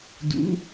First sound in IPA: d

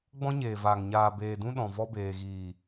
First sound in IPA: ɡ͡b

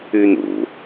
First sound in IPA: ʉ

